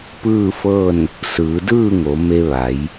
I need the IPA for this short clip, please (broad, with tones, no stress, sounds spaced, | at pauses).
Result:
p ɯː˥˨ f ɤː˥˨ n | s ɯː˩˧ d ɯː˥˨ ŋ o˩˧ m e˧ ʋ a˩˧ j